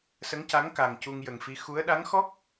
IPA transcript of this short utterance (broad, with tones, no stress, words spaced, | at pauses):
sə˧˥ŋca˧˥ŋ ka˨˩ŋ cu˧ŋjə˨˩ŋfi˧˥ xu˧˥ə̯ ɗa˧˥ŋxɔ˦˥k̚